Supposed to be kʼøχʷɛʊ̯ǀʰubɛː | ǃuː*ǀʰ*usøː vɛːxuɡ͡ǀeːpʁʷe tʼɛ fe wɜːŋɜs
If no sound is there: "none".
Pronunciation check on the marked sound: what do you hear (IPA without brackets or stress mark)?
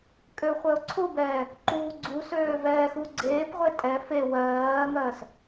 ɡ͡ǀ